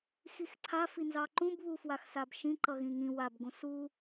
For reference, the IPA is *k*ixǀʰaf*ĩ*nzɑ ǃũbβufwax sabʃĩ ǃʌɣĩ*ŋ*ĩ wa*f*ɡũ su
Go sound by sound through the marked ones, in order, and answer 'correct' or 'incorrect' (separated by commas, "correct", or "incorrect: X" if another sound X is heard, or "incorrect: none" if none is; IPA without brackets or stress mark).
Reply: incorrect: x, incorrect: i, correct, incorrect: b